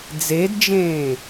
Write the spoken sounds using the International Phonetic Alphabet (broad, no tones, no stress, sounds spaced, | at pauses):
d͡z e d d͡ʒ ẽː